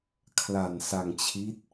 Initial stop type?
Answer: aspirated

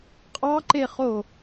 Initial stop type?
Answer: ejective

